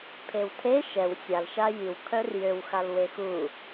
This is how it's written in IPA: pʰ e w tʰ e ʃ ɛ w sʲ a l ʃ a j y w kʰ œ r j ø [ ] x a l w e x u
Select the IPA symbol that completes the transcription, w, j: w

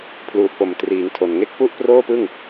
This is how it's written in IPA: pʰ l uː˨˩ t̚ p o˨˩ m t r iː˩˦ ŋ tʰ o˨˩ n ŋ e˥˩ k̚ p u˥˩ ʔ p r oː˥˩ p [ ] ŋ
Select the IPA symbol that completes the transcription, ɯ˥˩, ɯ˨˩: ɯ˥˩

